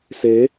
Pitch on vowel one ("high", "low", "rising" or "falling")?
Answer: rising